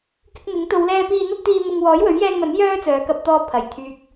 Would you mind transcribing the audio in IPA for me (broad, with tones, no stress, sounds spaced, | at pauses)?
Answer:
k ɪ˧ k̚ n̪ ɪ˨˥ ŋ t̪ o˨˧ w l ɛː˧ p iː˧ n̪ ɐ˧ t̚ t̪ iː˨ m ʊ˨ ŋ w ɔː˨˥ j w ɵ˨˥ ɥ j ɛː˧ ŋ m ɐ˨˥ n j œː˥ t͡s œː˨˧ k ɐ˧ p̚ t̪ ɔː˧ pʰ ɐ˨˩ j t̪ʰ yː˨ k̚